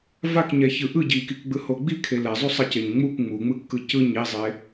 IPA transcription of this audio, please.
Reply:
v a k ɲ ɛ ç ɯ ʔ ɯ ɟ i k i k ɡ͡b ɯ h o ɡ͡b i kʰ e l ɛ zˤ u sˤ ʌ c e ɲ ŋ͡m u k ŋ͡m u ŋ͡m ɯ kː ɯ c ɯ ɲ i zˤ e

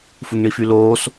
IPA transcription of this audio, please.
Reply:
f u ŋ ɳ i f y l oː s

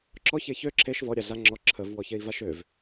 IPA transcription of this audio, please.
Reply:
ǁ ɔ ç e ç ø ǁʰ e ʃ v ɔ ɾʲ a ɮ a ŋ͡ǁ ɔ ǁʰ ə v w ɔ ç e i̯ v a ʃ ø v

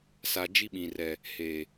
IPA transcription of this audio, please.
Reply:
s a˨ d͡ʒ i˦ ɓ ĩ˨ r ɛ˨ | h eː˨

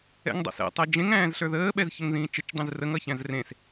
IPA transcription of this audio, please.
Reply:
ɛ̰ ŋ dˤ a̰ s ɛ̰ tˤ ɛ d͡ʒ ẽ ŋ æ̃ː z ɬ ə˞ ð əː ɓ ɛ z ç ə ŋ ð ĩː t͡ʃ ə t͡ʃ dˤ ĩ z r ə ŋ ʌ ç æ̃ z r ẽ s

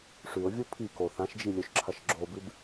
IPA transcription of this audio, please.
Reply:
ʂ ʉ ʊ̯ vʲ u pʰ i k o θ ã ʃ d͡ʒ i lʲ ɵ ʃ ǁʰ ɐ ʃ ɡ͡ǁ o b ɨ b

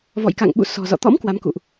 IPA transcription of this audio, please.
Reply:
v ɔ̰˧˨ j k a̰˧˨ ŋ ɓ ṵ˧˨ s ɔ̤˨˩ z ɔ̰˧˨ t̪ ɔ̰˧˥ m k w a˨˦ m k ṵ˧˨ ʔ

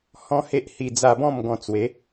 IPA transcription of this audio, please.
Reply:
h ɔ̃˦ h e˦ ʔ h i˧ d͡z a˧ b ɔ̃˥˧ m ɡ ɔ̃˧ t͡s w e˨˦

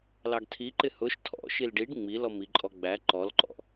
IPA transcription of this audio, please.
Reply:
l ɑ ɡ tʰ i ǃ ɪ h ʊ ʃ tʰ ɔ̰ ʃ i l ɖ i ɖ ŋ͡m i l ɔ m i ǃʼ ɔ ɡ͡b æ ǃ ɔ l ǃ ɔ̰

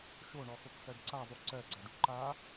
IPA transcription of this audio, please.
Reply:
ʃ o ɳ ɔ x o k x ɜ ɖ ǀ a zˤ u ǀ ɜ ɡ͡ǀ a ɖ u ǃ a

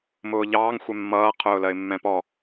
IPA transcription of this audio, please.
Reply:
m ʊː ʎ ɑː ŋ xʷ ɛ mː ʌː qʰ ʊː l ɜ ɪ̯ mː ɛ̃ p ɔ

